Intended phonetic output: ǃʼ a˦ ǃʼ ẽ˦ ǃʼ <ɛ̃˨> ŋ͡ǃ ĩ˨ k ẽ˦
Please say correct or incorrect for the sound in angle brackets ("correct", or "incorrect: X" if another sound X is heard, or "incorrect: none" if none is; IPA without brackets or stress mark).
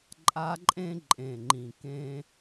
incorrect: ẽ˨